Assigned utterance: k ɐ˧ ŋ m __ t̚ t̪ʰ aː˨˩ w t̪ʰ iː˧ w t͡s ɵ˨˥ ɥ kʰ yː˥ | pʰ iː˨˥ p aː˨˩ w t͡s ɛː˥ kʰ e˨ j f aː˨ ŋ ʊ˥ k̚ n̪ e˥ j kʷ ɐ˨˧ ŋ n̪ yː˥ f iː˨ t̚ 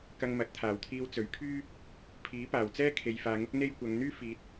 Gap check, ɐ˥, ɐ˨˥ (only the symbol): ɐ˨˥